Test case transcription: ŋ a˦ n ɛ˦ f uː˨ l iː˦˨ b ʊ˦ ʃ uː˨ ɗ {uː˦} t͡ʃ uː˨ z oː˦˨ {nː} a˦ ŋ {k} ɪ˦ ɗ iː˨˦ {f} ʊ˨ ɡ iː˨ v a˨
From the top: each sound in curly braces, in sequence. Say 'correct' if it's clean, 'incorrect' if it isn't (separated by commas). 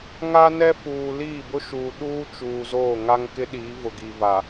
correct, incorrect, correct, incorrect